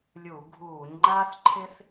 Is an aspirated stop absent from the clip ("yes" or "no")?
no